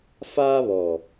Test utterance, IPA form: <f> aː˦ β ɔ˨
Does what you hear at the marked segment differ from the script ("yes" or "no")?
no